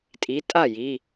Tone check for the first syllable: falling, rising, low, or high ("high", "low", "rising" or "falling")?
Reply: rising